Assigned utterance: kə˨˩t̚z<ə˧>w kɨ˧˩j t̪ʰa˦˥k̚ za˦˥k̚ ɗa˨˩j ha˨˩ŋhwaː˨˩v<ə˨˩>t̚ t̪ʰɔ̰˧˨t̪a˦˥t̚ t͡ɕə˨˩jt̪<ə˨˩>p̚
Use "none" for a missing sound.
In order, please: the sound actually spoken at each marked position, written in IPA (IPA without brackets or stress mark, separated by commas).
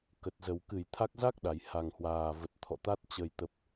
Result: ə˨˩, ə˨˩, ə˨˩